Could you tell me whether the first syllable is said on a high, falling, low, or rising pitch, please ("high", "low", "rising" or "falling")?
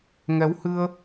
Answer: rising